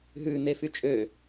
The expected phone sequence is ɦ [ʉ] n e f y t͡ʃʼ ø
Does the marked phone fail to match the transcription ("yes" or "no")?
no